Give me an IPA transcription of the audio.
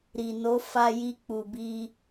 ɾ i˨ n o˨˦ f a˧ j i˧ k͡p u˨ b i˧

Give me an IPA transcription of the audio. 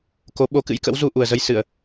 k o˨˦ ɓ o˨˦ k ɨ̰˧˥ j k ə̰˧˥ w z u˧ ʔ u˨˩ ə̯ z ə˧ j s ɨ˧˩˨ ə̯

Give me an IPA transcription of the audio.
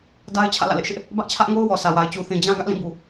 d a˦ ɪ̯ t͡ɕʰ ä̰˦˨ l ä̰˦˨ l ɪ˦ ʔ ʃ ɪ˦ ʔ | b ä˦ ʔ t͡ɕʰ ä˦ ʔ ŋ o˦ ʊ̯ w ɔ˨ sʰ ä˨ w a˨ ɪ̯ t͡ɕ u˨ θ ĩ˨ d͡ʑ ã˦ ɡ ä˦ ʔ l ĩ˦˨ b u˨

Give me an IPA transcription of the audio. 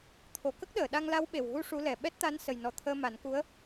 t̪ʰ o˨˩ k ə˦˥ k̚ ɗ əː˨˩˨ ɗ a˧ ŋ l a˧˥ w ɓ e˨˩ w ɣ u˧ ʂ u˧˥ l ɛ˨˩ ɓ ɛ˦˥ t̚ t̪ a˧˥ n s ə˨˩ j n ɔ˨˩ t̪ʰ əː˧ m a˨˩˦ n k u˧˥ ə̯

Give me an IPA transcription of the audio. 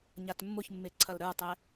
ɲ a t mː ʊ ç mː e ǀʰ ɐ l ɾ ə˞ tˤ ɛ

